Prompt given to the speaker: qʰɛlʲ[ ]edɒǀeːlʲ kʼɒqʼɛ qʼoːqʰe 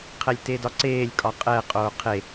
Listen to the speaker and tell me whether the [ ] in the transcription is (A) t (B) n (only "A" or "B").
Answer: A